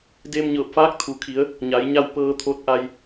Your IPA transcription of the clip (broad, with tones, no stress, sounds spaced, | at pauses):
d eː˧ m ɲ ɤː˧˩ p̚ f aː˧˥ k̚ t̪ʰ u˩ kʰ i˩˧ ə̯ | ɲ a˩˧ j ɲ a˥˨ w p ɤː˧ t̪ʰ o˧ t̚ ʔ a˧ j